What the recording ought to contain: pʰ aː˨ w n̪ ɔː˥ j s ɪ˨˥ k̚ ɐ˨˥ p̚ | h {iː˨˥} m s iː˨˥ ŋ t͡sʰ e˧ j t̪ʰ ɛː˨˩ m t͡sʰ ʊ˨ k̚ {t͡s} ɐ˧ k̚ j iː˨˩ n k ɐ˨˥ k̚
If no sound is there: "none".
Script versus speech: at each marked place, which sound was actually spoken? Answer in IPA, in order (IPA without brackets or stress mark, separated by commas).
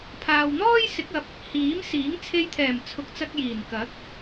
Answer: iː˨˥, t͡s